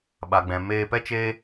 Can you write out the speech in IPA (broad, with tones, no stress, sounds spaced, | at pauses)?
ɓ a˨ ɡ͡b ɛ̃˨ m eː˧ p ɛ˦ t͡ʃ eː˦